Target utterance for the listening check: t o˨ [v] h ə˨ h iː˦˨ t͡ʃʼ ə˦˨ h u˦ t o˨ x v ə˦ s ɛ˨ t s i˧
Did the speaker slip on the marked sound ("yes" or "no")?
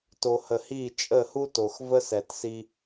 yes